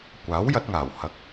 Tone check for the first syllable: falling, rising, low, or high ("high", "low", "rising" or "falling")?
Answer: rising